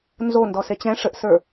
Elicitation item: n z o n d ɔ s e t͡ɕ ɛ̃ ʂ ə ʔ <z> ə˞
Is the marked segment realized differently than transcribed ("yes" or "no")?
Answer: yes